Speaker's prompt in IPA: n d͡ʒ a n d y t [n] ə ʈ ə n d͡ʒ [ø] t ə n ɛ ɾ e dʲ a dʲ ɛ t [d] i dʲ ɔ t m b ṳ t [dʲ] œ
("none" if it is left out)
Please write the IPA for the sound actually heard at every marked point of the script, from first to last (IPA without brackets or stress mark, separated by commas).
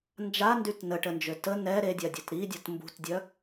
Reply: n, ø, ɾ, dʲ